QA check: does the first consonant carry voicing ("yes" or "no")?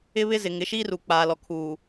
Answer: yes